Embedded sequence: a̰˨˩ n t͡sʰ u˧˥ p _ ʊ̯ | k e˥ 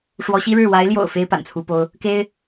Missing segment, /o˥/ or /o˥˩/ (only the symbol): o˥